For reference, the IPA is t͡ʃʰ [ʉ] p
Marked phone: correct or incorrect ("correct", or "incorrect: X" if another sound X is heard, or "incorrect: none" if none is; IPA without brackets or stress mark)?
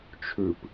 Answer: correct